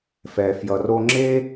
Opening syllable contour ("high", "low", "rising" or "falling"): low